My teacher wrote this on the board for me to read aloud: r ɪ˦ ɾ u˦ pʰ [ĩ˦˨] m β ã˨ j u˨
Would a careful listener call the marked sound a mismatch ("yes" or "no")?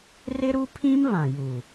yes